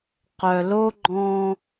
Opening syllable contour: low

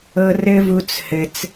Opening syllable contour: high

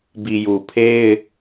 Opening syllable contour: low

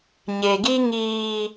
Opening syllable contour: low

